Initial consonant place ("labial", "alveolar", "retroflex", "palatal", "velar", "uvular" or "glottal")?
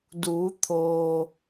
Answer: alveolar